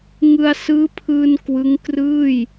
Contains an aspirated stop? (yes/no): yes